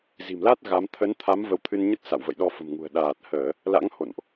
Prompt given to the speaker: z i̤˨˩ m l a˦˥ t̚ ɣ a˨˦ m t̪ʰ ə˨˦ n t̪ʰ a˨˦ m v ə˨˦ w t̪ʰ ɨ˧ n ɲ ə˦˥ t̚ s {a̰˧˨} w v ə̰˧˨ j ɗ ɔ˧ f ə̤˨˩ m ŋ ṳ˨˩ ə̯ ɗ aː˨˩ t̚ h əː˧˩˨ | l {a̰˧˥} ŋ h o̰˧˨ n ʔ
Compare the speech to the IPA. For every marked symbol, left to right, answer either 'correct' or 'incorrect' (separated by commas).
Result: correct, correct